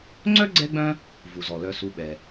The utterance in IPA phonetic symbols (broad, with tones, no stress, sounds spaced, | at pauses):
ŋ͡ǀ œ˥ ɡ͡ǀ ɛ˦ ɡ͡b œ̃˦ | v u˩ z ɔ˩ l œ˨ s u˨ ɓ ɛ˩